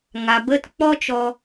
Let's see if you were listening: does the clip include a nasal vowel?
no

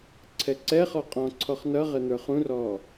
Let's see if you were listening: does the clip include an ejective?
yes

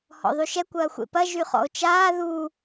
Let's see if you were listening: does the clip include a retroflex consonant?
no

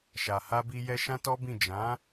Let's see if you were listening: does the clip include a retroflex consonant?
no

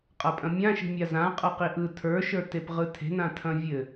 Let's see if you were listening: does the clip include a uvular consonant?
yes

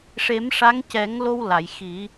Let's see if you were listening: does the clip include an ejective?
no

